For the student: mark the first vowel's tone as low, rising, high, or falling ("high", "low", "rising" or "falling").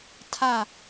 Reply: falling